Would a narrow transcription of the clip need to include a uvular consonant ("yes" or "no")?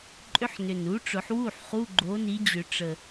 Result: yes